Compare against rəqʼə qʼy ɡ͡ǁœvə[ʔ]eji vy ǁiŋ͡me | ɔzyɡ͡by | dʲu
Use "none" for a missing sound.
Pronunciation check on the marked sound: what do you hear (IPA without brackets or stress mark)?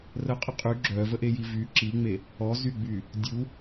ʔ